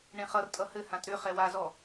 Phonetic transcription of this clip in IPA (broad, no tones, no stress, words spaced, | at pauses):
ɳẽχʌr tʼʌhɘ hãtɾʏ χɛwazɔ